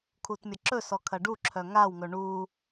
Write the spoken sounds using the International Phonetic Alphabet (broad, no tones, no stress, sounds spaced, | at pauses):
kʰ u t mʲ ɐ ǁ ɵ s ɔ kʰ ɐ ɖ u ǁʰ œ ŋ a w ŋ ɵ ɳ u